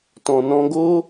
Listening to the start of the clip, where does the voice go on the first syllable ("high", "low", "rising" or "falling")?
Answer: low